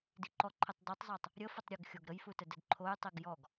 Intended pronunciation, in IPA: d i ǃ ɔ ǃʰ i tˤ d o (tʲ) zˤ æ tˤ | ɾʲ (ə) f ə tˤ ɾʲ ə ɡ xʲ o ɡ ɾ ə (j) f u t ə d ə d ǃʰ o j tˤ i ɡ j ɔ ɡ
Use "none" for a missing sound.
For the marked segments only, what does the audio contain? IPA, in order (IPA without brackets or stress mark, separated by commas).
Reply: tˤ, ə, j